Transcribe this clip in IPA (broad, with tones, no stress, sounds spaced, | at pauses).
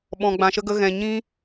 ɓ ɔ̃˧ ɡ͡b ã˧ ʃ ə˦ ɡ ə˦ ɣ ɛ̃˧ ɲ ĩ˦